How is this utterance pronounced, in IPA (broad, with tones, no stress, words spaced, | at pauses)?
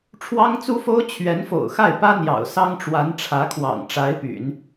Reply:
ʈ͡ʂʰwɑ˥ŋt͡su˥fo˥ʊ̯ t͡ɕʰɥɛ˧˥nfo̰˨˩ʊ̯xa˥˩ɪ̯pä˥ n̪jɑ̰˨˩ʊ̯sɑ˥ŋʈ͡ʂwa˧˥n ʈ͡ʂʰä˧˥kʰwɑ̰˨˩ŋ ʈ͡ʂa˧˥ɪ̯py̰˨˩˦n